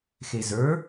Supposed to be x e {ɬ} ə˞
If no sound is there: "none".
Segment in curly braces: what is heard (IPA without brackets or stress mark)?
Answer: z